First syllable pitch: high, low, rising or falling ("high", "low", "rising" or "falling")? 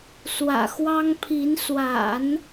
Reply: low